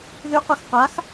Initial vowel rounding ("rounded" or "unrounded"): rounded